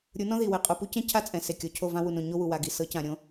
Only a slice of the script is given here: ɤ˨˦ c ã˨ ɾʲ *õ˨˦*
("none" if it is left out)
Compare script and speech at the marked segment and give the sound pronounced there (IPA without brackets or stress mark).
õ˦